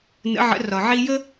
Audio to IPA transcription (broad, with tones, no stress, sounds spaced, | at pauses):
n ə̰˩˧ ʕ ə̰˩˧ r ɒ˩ ʕ i˧ j ə˥